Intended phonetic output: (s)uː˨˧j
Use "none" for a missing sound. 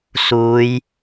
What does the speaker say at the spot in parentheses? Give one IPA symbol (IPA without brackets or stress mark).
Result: s